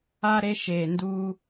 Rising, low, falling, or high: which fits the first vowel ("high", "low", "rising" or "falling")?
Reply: high